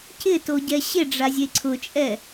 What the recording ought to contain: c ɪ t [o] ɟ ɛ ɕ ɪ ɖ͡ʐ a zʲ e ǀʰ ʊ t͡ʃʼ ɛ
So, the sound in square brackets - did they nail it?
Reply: yes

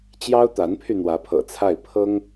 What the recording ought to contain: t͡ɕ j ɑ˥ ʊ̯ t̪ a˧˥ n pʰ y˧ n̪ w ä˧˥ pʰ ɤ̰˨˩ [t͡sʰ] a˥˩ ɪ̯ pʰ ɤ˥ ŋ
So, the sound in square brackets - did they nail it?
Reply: yes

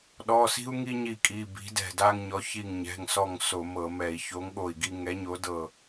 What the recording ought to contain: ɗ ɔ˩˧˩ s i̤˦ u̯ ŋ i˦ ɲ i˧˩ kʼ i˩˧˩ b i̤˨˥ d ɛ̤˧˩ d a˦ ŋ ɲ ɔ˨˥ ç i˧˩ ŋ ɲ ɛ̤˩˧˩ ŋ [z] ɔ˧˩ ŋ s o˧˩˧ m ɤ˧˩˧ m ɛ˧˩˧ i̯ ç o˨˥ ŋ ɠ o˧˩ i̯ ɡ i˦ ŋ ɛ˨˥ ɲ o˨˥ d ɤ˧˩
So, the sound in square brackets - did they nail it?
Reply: no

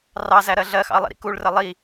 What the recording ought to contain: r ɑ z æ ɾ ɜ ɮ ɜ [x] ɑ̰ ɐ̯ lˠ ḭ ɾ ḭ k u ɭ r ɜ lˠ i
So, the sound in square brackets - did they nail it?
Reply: yes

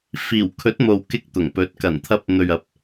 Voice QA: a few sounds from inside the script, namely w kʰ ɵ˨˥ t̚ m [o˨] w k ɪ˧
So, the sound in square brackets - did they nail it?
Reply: yes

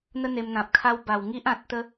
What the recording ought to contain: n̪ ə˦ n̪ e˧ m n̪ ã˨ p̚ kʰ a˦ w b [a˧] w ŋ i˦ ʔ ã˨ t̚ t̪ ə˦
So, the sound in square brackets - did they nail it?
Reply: no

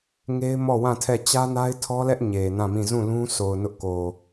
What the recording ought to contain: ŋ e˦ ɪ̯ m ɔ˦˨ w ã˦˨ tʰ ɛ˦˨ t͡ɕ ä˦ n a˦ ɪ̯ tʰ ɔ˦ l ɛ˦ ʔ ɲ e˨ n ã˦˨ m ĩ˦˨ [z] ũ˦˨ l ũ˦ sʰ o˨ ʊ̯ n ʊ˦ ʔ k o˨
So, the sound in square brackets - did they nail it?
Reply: yes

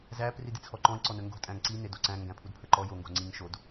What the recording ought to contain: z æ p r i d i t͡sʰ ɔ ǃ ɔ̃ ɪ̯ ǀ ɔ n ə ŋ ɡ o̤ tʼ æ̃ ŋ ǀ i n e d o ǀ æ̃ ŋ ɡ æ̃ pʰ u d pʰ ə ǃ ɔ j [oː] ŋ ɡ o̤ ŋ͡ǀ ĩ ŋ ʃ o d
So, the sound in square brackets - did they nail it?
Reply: no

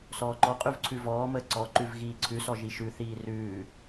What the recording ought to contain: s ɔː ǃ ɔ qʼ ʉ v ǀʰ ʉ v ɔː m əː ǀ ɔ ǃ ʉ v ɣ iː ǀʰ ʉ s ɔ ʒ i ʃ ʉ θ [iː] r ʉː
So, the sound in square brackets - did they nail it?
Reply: yes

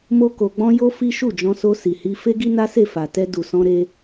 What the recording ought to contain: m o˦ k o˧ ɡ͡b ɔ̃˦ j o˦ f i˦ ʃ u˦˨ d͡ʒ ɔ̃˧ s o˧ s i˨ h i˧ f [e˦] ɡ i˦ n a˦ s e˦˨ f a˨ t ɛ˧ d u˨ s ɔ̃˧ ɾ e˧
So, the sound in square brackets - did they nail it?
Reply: yes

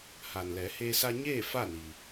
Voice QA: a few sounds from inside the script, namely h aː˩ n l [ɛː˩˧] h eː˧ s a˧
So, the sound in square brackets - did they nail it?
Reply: yes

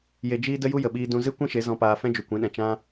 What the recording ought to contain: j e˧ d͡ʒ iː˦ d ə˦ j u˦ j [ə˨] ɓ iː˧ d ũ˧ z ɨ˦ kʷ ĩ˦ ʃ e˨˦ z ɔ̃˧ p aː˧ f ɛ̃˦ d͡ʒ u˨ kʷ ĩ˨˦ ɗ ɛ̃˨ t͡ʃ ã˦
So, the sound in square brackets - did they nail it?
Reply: yes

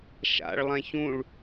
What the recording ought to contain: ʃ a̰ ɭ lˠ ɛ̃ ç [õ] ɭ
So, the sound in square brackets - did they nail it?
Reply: no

